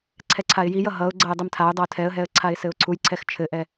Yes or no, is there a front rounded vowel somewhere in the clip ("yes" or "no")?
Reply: no